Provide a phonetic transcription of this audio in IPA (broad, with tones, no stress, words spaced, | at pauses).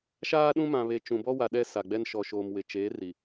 ʃaː˦ɗũ˦mã˨βe˨ t͡ʃũ˨bɔ˦wa˨ ɗɛ˦sa˨ɡ͡bɛ˦n ʃɔ˨ʃoː˨m wɪ˨ t͡ʃeː˨˦ ri˨